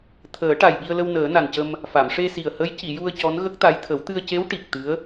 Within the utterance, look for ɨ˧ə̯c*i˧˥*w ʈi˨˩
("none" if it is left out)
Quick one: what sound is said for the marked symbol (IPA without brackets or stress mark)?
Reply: e˧˥